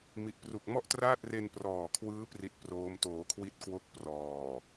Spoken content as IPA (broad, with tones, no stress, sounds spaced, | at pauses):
m i˨˩ ʔ p r u˨˩ k̚ m ɔ˥˩ ʔ t r aː˥˩ t̚ r e˧ n p r ɔː˨˩ kʰ w ɯː˦˥ p r i˦˥ t̚ p r oː˦˥ m t oː˩˦ kʰ w i˦˥ t̚ k w o˦˥ k̚ p r ɔː˨˩